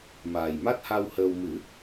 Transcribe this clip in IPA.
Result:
m aː˨˩ j m a˦˥ t̚ h a˧ w h əː˧ w m ɨ˨˩˦

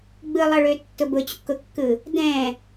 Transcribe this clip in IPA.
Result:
ɡ͡b ɯ lˠ ʌ ɭ ø tː ʊ b ʊ t͡ɕ ṵ k ʊ kː ɯ | d ɛ̃

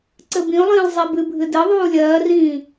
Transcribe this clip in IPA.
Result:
ǀ ɘ b ĩ ʊ̯ lˠ ĩː lˠ zˤ i b ɨ bʱ ɨ d ɘ ðˤ uː lʲ ɜː r ĩː

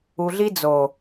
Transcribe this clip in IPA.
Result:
u˧ ɮ i˦ d͡z o˨

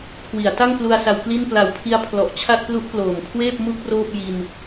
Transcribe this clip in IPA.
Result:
kʰ w i˩˦ a̯ t a˥˩ ŋ p l u˧ a̯ s a˧ w k l i˥˩ n p l a˨˩ w pʰ i˧ a̯ pʰ l ɔ˨˩ ʔ t͡ɕʰ a˥˩ t̚ p l u˦˥ ʔ p l oː˨˩ m kʰ w eː˥˩ p̚ m u˥˩ k̚ r oː˥˩ p̚ j i˧ n

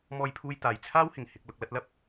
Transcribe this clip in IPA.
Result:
m ɔː˧ j pʰ uː˧ j t̪ aː˨ j t͡sʰ aː˥ w h ɪ˨˩ ŋ h ɪ˧ k̚ l ʊ˧ k̚ l ɐ˥ t̚ l ɐ˥ p̚

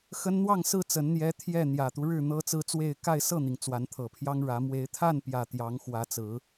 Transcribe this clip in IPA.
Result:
x ə˦ n n̪ w ɑ˥˨ ŋ s ɹ̩˥˨ t͡s ə˨˦ n n̪ j ɛ˦ t̪ʰ j ɛ˥˨ n̪ j ä˨˩ t̪ u˦ ɻ ɻ̩˥˨ n̪ ɤ˦ t͡s ɹ̩˦ t͡s w e˥˨ ɪ̯ k a˥˨ ɪ̯ s ɤ˥˨ n̪ i˩ ŋ t͡s w a˨˦ n t̪ʰ ɤ˨˩ pʰ j ɑ˦ ŋ ɻ ä˨˦ m w e˨˦ ɪ̯ t̪ʰ a˥˨ n p j ä˨˩ t̪ j ɑ˨˦ ŋ x w ä˨˦ t͡s ɹ̩˨˦

